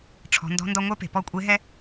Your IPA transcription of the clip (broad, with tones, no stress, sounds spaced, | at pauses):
ʈ͡ʂʰ ɔ̤˩˧ n d ɔ̤˧˥ n d ɔ˧ ŋʷ ɛ˧˥ p e̤˩ p ɔ˧˥ kʷʼ e˧˥ ɦ ɛ˥